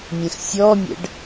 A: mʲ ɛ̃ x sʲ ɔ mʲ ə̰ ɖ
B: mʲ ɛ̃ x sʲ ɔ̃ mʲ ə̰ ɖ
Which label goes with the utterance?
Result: A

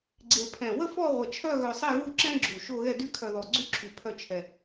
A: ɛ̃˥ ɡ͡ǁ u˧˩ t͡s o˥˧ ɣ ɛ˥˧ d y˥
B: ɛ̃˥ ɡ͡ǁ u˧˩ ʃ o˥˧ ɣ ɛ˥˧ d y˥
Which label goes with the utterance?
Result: B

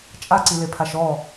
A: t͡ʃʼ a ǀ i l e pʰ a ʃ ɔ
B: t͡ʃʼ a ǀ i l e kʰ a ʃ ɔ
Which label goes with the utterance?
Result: A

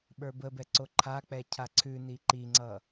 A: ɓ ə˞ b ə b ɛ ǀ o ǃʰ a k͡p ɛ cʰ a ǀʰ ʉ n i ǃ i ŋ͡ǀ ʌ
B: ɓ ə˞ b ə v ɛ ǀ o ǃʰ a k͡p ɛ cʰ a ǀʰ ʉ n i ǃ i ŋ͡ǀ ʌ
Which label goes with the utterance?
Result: A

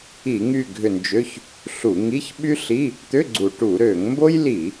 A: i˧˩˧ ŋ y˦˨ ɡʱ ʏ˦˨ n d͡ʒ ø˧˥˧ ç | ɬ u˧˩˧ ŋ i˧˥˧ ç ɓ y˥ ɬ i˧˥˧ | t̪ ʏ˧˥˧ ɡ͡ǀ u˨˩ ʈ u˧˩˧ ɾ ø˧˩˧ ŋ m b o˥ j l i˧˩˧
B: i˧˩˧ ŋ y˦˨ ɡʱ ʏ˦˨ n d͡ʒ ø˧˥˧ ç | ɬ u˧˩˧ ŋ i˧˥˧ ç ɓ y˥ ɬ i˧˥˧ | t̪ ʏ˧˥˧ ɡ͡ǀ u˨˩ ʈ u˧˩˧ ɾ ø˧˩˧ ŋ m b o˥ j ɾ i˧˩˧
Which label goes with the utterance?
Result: A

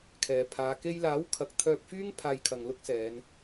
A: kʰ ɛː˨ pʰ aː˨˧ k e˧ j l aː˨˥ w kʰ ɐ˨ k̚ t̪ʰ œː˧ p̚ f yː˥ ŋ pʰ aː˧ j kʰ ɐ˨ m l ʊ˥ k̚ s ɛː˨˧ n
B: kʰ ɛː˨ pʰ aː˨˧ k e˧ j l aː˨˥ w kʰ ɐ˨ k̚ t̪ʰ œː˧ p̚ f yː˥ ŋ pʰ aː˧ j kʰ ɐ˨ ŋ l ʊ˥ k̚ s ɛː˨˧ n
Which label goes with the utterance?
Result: B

